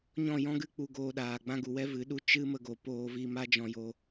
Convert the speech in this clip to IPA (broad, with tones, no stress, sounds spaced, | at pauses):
ɲ ɔ̃˦˨ j ɔ̃˦ ɡ ɨ˦ k͡p u˧ ɡ oː˧ ɗ aː˨ ɡ͡b ã˦ ɡ u˨ w ɛ˦ v ɨ˨˦ ɗ u˦ t͡ʃ ɨ˦ m ə˧ ɡ o˨ p oː˧ v iː˧ m a˦ d͡ʒ ɔ̃˧ j o˧